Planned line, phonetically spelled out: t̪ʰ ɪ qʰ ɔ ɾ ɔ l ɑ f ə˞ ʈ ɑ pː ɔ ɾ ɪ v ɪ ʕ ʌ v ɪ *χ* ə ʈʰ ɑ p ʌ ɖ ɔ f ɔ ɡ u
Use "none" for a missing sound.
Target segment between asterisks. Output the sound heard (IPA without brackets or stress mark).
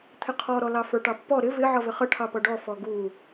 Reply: χ